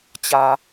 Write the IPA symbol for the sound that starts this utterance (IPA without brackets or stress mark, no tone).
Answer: t͡ɕ